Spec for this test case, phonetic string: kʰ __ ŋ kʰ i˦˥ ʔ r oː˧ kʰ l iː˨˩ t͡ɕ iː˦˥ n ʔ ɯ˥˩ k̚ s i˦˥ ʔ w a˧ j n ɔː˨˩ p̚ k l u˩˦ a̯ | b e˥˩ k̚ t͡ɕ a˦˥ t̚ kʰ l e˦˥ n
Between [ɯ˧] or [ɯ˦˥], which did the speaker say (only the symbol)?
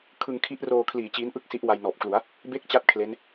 ɯ˧